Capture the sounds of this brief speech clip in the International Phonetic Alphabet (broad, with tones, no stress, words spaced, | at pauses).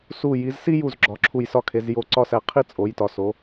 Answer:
su˧˩ ji˩˧zsi˥ju˧˩z ɡ͡ǁɒ˩˧ǁʰu˧˩jsɒ˥˧ kʰe˩˧zjo˧˩ǀɒ˥˧sæ˧ qʰi˥˧t͡sʼo˩˧jtɒ˩˧ so˩˧